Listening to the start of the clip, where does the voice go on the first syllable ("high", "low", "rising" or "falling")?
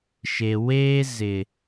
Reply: low